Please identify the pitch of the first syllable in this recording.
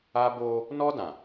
high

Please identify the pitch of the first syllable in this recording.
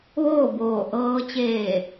falling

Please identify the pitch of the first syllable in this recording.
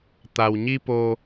low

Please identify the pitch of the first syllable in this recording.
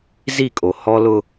falling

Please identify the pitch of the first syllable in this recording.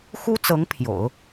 high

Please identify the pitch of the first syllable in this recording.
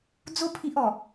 high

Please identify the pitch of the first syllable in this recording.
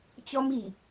high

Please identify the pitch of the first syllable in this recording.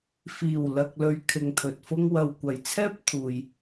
low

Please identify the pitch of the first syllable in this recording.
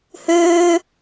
high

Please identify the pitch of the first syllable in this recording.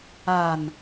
low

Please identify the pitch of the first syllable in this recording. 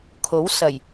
rising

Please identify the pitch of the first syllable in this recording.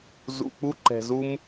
low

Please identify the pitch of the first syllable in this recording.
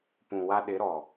low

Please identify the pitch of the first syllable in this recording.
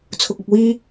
low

